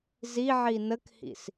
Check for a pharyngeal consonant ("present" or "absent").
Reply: present